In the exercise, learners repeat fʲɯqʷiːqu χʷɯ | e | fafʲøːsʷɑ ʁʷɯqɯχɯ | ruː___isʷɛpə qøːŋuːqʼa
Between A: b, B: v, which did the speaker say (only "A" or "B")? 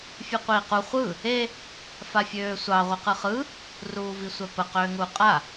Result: B